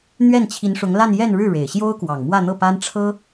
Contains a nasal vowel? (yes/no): no